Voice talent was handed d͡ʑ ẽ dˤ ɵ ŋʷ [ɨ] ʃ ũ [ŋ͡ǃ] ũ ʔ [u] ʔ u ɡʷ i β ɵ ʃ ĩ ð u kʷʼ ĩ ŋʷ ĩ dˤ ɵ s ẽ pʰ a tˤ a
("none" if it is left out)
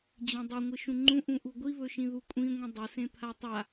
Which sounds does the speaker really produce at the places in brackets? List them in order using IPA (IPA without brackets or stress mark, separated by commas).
ɨ, ŋ͡ǃ, ũ